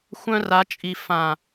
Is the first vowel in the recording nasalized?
yes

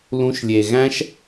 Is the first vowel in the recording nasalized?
yes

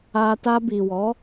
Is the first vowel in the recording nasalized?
no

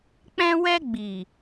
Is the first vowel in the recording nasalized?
yes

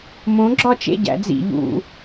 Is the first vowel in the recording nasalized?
yes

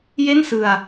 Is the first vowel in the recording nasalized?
no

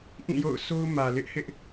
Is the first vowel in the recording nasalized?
yes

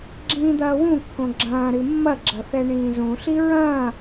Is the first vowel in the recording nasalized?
yes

